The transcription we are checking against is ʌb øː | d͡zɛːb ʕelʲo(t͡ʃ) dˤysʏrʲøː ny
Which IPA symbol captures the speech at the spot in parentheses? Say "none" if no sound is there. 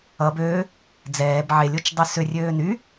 t͡ʃ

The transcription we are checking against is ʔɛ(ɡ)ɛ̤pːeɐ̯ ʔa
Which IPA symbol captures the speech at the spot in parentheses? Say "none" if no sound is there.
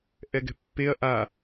ɡ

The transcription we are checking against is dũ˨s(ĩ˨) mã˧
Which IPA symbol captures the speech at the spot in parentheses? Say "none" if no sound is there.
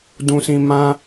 ĩ˨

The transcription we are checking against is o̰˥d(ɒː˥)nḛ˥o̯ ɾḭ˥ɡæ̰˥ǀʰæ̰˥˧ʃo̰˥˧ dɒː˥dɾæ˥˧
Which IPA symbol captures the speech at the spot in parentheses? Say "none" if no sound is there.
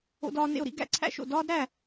ɒː˥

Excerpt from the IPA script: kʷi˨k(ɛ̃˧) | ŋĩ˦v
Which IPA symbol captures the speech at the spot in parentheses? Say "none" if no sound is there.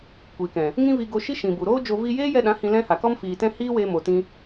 ɛ̃˨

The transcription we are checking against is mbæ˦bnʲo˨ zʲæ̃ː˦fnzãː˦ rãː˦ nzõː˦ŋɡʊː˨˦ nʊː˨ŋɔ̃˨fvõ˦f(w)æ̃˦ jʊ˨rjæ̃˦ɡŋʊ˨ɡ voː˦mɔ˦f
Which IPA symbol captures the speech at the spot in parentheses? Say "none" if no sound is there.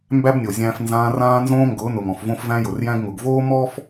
v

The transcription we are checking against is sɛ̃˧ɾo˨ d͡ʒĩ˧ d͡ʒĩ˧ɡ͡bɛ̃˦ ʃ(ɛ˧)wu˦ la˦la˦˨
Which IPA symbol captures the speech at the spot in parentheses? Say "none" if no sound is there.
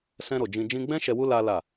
ɛ˧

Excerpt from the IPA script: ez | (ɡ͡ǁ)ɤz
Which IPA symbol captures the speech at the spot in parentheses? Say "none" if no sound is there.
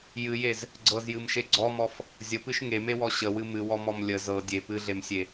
ɡ͡ǀ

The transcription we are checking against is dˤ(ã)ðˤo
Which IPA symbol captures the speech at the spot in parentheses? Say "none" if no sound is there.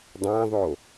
ã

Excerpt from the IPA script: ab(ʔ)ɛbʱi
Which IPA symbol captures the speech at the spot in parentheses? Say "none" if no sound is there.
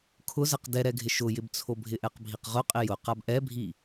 ʔ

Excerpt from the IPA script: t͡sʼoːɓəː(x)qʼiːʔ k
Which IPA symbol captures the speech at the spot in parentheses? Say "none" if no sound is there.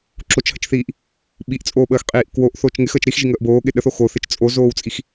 x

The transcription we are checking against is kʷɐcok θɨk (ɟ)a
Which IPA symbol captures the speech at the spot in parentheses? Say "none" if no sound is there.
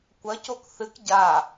ɟ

